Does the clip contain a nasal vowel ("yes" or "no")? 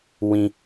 yes